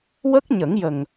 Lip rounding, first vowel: unrounded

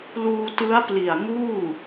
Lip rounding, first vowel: rounded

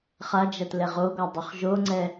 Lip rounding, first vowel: unrounded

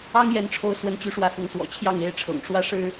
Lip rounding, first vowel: unrounded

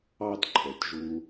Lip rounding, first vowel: unrounded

